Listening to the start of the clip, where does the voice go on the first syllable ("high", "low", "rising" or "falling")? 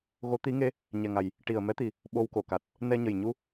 rising